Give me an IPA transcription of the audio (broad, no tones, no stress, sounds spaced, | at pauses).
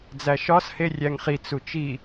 d͡z æ ʃ ɒ s h e rʲ æ ŋ χ i t͡s u t͡ʃ i